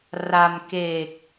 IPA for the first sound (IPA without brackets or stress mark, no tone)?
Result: r